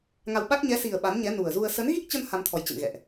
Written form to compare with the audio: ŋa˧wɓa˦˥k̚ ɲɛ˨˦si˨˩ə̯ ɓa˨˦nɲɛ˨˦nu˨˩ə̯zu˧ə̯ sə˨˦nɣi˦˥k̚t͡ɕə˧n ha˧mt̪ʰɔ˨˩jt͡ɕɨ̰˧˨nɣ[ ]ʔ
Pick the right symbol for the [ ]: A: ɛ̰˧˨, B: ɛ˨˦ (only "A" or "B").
A